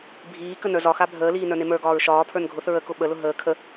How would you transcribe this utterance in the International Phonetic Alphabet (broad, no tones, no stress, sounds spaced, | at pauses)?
bʱ iː k ə n ə˞ z ɒ x a bʱ əː l iː n ə˞ n e m ə˞ ɡ ɒː ɹ ʃ ɒː pʰ ə˞ n ɡʱ ʊ θ ɹ ə k ʊ ɓ ə l ʊ ɦ əː kʰ ə